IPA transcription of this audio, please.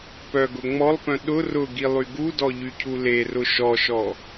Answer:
p œ ɡ ʊ ŋ͡m ɔ lˠ p œ̃ ɗ ʊ r ʊ ɡ i lˠ y ɡ u d ɔ ʎ y cʰ u l e r ʊ ʃ ɔ ʃ ɔ

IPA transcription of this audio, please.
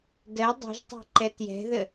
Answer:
d ɜ dˤ i̤ ʒ tˤ i̤ ǃ ɛ t j ɛ̤ ð ə

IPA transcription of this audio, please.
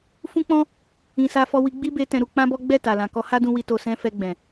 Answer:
f ũ˦ k͡p ɔ̃˦ | ĩ˧ s a˦ f ɔ˦ w i˧ ɡ͡b i˦ b e˧ t ɛ̃˧ ɾ u˧ k͡p ã˦ b ɔ˦ ɡ͡b ɛ˦˨ t a˨ l ã˨ k ɔ˧ h a˦ d ũ˧ w i˧ t o˧ s ɛ̃˦ f ɛ˧ ɡ͡b ɛ̃˨

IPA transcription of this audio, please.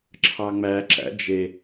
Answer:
ǁʰ ɑ ŋ͡m æ ǁ æ̰ d͡ʒ e

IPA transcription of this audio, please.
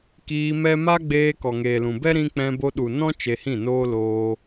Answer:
k iː˧ m ɛ˦ m a˦ ɡ͡b eː˧ k ɔ˨ ŋ eː˨ l ũ˨ b ɛ˦ ɾ ĩ˧ k͡p ɛ̃˧ b o˧ ɗ u˨ n ɔ̃˦ t͡ʃ e˧ h ĩ˦˨ n oː˦ l oː˧

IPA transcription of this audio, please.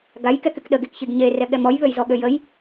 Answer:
ɡ a j k ɛ k y k ɗ ə ɡ e k ç i ɡ ɲ e r ɛ ɠ ɛ m ɔ j β ø j z ɔ ɠ ø j ə j

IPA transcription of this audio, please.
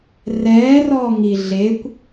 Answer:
r ɛː r ɔː ŋ i ɮ e kʷ

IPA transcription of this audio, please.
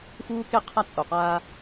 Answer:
f uː˦ k e˦ qʰ a˦ t͡sʼ o˨ q aː˦

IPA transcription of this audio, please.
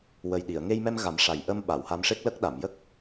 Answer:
w ə˨˩ j ɗ i˨˩˨ ə̯ ŋ e˧ j m ɛ˧ m ɣ a˨˩˦ m ʂ a˨˩ j ʔ ə˧ m ɓ a˨˩˨ w h a˧ m ʂ e˦˥ k̚ l ə˦˥ k̚ ɗ a˨˩˨ m j ə˦˥ k̚

